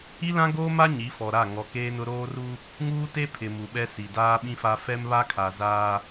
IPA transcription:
i˦ l ã˦ ɡ oː˦ m a˦ ɲ i˨˦ f ɔ˨ ɾ a˦˨ ŋ ɔ˨ k eː˦ n ʊ˦ ɾ oː˦ r u˦ | ŋ uː˦ t e˦ pʰ ɪ˨ m u˨ ɓ ɛ˦ s i˨ d aː˦ ɓ ĩ˦ f a˦ f ɛ˦ m β a˦ kʰ a˨ z aː˦

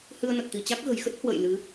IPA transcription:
h ɨ˧ ə̯ n ə˨˩ t̚ t̪ i˧˩ t͡ɕ a˦˥ k̚ ɣ ə̤˨˩ j x ə˦˥ t̚ h w ə̰˧˨ j l ɨ˨˦

